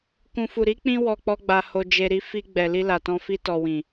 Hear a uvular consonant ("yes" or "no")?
no